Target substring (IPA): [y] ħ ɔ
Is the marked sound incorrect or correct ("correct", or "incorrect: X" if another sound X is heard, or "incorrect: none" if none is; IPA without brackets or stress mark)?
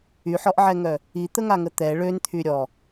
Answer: correct